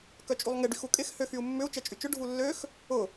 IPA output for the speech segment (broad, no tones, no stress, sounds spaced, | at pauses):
k œ t͡ʃʼ u lˠ ŋ ɪ ɖ y x u kʼ ɪ x h ø x y u̯ mː ʏ u̯ t͡ʃ ɛ t͡ʃʼ y t͡ʃ ʊ ɖʱ u lː ø x | ʊ